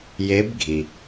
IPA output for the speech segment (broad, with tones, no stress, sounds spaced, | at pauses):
j e˧˥ b ɡʱ i˩